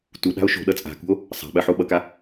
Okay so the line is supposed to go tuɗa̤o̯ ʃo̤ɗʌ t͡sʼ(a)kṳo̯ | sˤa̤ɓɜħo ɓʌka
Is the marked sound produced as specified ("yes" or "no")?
no